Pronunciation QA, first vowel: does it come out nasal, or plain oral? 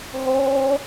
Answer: oral